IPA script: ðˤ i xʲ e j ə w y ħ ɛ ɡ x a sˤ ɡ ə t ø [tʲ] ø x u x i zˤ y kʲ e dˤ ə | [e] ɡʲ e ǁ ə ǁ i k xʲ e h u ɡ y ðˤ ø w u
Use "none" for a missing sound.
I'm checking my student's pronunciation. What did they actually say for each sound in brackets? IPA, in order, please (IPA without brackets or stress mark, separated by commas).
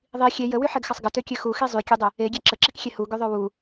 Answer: kʲ, e